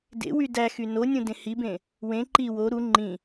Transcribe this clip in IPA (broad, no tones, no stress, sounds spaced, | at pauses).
d ḛ w y d æ x y n o nʲ ũ d ẽ h i b ẽ | w ẽ ǃ i w o ɾ u ŋ͡ǃ ĩ